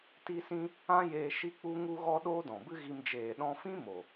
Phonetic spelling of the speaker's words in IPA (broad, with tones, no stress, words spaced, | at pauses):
ti˦sĩ˦ | ã˦jeː˧ ʃi˦ k͡pu˦ŋu˦ɣɔ˦ ɗoː˦dɔ̃˨bɨ˦ɣi˧m d͡ʒeː˨ɗɔ̃˧fĩ˦ mo˨